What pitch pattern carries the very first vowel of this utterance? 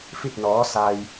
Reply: falling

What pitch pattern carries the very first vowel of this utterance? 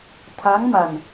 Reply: rising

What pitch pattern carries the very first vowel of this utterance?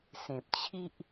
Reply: low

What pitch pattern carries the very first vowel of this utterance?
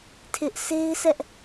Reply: high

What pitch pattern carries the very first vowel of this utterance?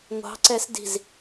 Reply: rising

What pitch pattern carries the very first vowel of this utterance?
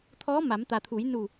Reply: rising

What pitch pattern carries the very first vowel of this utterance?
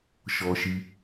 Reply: high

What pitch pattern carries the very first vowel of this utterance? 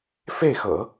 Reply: falling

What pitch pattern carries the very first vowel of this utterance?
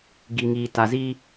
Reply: low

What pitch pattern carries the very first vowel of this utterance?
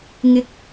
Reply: rising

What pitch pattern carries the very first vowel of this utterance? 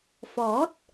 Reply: rising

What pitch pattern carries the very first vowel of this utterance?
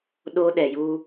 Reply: high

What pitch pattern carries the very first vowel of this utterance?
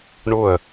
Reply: falling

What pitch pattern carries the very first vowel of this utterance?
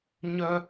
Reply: high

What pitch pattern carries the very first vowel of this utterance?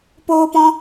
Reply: high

